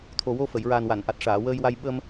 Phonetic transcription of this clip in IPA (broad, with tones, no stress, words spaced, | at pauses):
t̪ʰo˨˩wo˧fə˨˩˨j ɹa˨˩nwa˨˩˨nʔa˨˩t̚ ʂaː˨˩˨wəː˧jwa˧j ɓə˧m